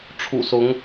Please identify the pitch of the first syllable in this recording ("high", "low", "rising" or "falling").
low